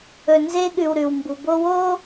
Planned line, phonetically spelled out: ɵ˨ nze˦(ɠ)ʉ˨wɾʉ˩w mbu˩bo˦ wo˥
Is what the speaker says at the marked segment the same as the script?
yes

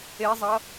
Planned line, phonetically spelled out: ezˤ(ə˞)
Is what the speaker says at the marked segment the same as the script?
no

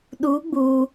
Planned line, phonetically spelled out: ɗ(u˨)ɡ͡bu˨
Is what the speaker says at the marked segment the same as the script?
no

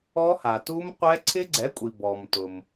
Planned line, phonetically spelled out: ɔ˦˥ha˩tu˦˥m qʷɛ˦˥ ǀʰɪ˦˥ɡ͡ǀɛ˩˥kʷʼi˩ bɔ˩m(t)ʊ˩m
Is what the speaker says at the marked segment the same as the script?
yes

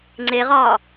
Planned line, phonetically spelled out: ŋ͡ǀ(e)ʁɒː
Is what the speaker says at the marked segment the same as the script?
yes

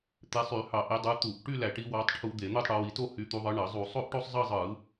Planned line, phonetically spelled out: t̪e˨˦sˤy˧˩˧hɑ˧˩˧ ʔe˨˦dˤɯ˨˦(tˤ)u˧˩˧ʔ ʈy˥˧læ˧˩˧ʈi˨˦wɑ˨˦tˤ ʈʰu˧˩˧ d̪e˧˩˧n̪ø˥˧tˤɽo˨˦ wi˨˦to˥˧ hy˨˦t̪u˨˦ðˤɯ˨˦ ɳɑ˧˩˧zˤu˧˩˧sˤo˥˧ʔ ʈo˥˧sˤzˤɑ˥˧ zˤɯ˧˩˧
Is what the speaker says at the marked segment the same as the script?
no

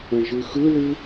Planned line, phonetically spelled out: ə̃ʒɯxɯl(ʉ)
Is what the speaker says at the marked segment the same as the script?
yes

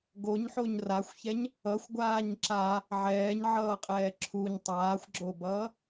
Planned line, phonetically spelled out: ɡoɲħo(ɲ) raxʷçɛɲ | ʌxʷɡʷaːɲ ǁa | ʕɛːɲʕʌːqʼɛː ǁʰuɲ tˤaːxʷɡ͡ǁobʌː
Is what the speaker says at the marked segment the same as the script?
yes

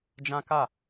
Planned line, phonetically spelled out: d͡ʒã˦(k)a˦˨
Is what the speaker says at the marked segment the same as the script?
yes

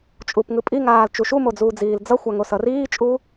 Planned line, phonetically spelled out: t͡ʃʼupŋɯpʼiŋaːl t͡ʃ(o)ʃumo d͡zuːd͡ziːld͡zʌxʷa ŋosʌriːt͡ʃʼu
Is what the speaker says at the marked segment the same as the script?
no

